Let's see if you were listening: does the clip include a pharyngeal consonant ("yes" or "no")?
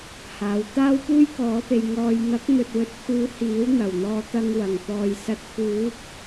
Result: no